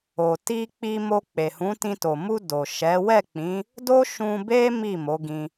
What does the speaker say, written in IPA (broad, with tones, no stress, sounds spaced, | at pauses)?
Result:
o˨ t i˧ k͡p i˧ m o˧ k͡p e˨ h ũ˨˦ t ĩ˧ t o˨ m u˧ d o˨ ʃ ɛ˨˦ w ɛ˦˨ k͡p ĩ˨˦ | d o˦ ʃ ũ˧ b e˦ m i˦˨ m o˨˦ ɡ ĩ˧